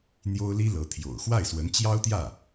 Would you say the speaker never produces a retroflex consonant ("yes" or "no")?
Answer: yes